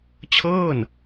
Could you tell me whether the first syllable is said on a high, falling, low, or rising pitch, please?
falling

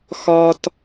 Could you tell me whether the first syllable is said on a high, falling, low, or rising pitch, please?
low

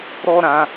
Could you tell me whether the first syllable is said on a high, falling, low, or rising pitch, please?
high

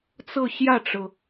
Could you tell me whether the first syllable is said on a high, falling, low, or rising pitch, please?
falling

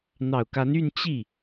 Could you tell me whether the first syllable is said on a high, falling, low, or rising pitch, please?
low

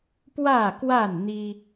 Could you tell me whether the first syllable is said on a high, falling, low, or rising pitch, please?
falling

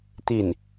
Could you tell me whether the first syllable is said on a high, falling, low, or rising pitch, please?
falling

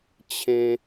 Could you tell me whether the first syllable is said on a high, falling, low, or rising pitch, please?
high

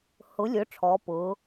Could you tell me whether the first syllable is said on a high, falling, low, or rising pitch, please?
rising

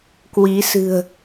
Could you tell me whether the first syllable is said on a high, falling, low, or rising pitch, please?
rising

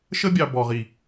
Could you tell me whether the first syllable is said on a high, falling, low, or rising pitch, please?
high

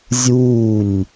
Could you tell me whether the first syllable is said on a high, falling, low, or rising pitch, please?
falling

